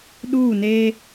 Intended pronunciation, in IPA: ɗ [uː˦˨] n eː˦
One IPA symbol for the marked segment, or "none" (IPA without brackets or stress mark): uː˦˨